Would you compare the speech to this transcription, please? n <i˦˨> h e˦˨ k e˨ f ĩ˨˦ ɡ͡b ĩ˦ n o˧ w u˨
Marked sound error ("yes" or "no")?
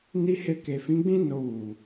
yes